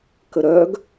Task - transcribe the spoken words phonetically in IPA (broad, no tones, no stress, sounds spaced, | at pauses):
k ə ɾ œ ɡ